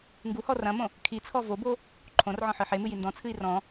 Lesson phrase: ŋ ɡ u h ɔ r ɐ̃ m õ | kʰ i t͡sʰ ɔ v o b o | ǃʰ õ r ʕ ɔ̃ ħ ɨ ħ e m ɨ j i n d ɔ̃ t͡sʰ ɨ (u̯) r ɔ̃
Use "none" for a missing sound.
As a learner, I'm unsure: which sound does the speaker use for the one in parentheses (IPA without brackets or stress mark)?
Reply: i̯